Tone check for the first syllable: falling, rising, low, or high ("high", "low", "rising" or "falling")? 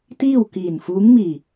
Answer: falling